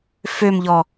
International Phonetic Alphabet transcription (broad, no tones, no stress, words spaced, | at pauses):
fømʎɔ